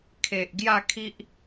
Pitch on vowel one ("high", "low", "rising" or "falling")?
low